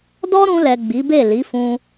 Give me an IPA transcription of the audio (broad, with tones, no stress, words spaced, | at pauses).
dɔ˦ɾũ˧lɛ˨ ɡ͡bi˨˦be˦˨ li˨˦fũ˧